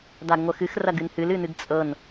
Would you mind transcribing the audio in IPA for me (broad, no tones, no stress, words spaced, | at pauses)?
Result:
daɡŋʷəxɨx rɐɡɨnhɨl ɨnɨɡt͡sʼɤn